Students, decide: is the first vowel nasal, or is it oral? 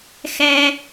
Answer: oral